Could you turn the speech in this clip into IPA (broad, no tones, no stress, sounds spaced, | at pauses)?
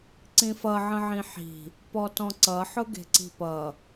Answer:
ǀ ĩ f ʌ ʕ ə̃ ʕ ĩ ħ i̤ | p ɔ t ɔ̃ ǀ ʌ ħ ʊ ɡ e̤ ǀ i̤ p ʌ